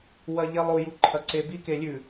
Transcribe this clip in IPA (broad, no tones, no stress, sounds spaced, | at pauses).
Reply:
w ɐ ʎ e lˠ o j u ǃʰ ɐ ǀ e b i k e lʲ ʉ